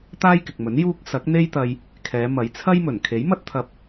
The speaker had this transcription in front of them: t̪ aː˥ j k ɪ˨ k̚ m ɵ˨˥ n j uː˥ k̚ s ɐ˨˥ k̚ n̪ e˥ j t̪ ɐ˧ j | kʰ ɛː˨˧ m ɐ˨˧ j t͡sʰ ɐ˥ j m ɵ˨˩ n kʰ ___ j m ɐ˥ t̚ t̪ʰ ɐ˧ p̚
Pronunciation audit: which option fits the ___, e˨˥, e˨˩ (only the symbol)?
e˨˥